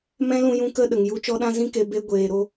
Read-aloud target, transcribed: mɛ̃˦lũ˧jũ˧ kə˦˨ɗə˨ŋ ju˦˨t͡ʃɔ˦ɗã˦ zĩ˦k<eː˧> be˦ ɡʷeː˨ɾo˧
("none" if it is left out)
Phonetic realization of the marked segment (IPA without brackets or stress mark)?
e˧